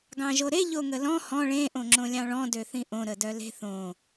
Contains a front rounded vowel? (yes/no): yes